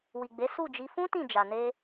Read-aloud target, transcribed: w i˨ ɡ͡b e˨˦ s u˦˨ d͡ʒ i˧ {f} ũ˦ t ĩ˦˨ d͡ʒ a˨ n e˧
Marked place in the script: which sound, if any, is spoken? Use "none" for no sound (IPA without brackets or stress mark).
f